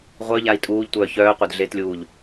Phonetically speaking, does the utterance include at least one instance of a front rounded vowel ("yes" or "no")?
yes